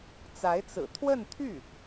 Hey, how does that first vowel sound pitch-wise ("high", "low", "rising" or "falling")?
rising